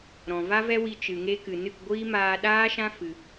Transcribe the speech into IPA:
ɾ ɔ̃˨ v a˦ v ɛ˦ w i˧ t͡ʃ ɨ˨ ŋ e˧ k ɨ˨ n ɨ˦˨ k ɡʷ iː˦ m aː˧ ɗ aː˦ ʃ ã˦ f ɨ˧

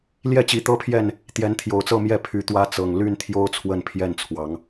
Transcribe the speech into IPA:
l j ɛ˥˨ t͡ɕ i˨˦ t̪ ɤ˦ pʰ j ɛ˥˨ n | t̪ j ɛ˨˦ n t̪ʰ j o˨˩ ʊ̯ t͡s ɤ˥˨ m j ɛ˥˨ pʰ y˨˦ t̪ w ä˦ t͡s ɤ˨˩ ŋ l y˥˨ n t̪ʰ j o˦ ʊ̯ t͡sʰ w ə˥˨ n pʰ j ɛ˥˨ n t͡sʰ w ɑ˨˦ ŋ

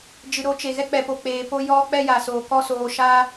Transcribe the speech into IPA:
d͡ʒ ɨ˨ ɾ o˨˦ t͡ʃ e˨ ɣ ɛ˧ k͡p ɛ˨ p o˨ k͡p eː˨ p o˦ j ɔ˦ k͡p ɛ˦ j a˨ s oː˨ k ɔ˦ s oː˧ ʃ a˦

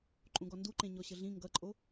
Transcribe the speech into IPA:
ǃʼ ũ ɡ ɔ n d u ǃ ẽ ɲ ɔ ɕ ə ɮ ĩ ŋ ɡ ʌ ǃʼ o

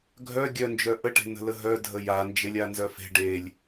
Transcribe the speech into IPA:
ɡʱ œ ɡʲ œ n d͡ʒ œ ʔ ə ʈ e̤ n ə̤ l ə ɦ œ dʱ ə j a n d͡ʒ e lʲ a n z œ f e̤ ɖ e lʲ

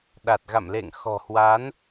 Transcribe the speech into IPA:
ɗ a˨˩ t̚ ɣ a̰˧˨ m l ḛ˧˨ ŋ x ɔ̤˨˩ h w a˨˦ n

